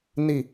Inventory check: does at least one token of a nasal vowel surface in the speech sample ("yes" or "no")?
no